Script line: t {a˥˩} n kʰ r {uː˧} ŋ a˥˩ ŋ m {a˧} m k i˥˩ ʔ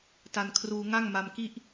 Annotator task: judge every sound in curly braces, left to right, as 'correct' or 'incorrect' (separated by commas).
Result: incorrect, correct, correct